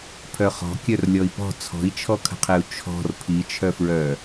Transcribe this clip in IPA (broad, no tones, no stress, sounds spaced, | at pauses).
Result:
pʰ œ χ ɔ̤ kʲ œ r lʲ ɔ i̯ p ɔ̤ t͡sʰ ɔ̤ i̯ t͡ʃʰ ɔ kʰ ə̤ qʰ e u̯ t͡ʃʰ ɔ̤ r pʰ i t͡ʃʰ œ f ɹ œ